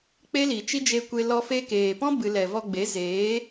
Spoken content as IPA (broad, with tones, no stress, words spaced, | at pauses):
k͡pe˦li˨t͡ʃi˦ d͡ʒe˧kʷe˧ lɔ˦fe˦ keː˨pɔ̃˦ bɨ˧ lɛ˨vɔ˧ɡ͡be˨˦ zeː˨˦